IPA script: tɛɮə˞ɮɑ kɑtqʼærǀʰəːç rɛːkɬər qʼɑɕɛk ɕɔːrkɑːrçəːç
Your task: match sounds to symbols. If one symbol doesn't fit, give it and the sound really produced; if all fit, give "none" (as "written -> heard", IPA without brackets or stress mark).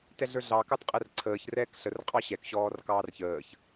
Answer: none